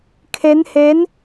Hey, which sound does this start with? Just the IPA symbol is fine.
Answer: kʰ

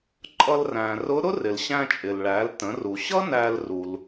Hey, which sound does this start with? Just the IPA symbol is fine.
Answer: ǃʼ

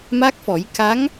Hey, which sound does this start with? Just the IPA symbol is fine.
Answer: m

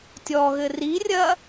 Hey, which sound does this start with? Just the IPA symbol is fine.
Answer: tʲ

